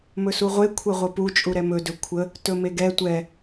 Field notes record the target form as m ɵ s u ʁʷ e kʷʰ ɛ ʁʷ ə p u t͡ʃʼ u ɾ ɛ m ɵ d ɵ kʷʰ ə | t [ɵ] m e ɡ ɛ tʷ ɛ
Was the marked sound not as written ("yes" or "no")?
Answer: no